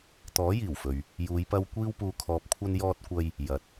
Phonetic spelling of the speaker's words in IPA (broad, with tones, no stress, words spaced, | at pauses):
t̪ɔː˨˥jiː˨˩wfɵ˨ɥ | juː˨˧jpɐ˧w kʷiː˧wpuː˨ kʰɔː˨p̚kʷʰɐ˧n jɔː˧t̚kʷɐ˧j | jɐ˨t̚